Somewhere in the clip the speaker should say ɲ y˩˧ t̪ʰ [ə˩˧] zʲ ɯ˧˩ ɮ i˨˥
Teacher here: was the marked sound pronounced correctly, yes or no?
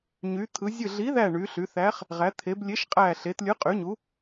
no